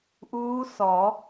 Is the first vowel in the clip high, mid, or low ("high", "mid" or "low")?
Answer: high